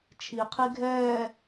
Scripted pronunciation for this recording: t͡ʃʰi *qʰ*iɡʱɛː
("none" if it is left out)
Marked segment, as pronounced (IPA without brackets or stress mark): qʰ